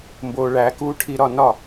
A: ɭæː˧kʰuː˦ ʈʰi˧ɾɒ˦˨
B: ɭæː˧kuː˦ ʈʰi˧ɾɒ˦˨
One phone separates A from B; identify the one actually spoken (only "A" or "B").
B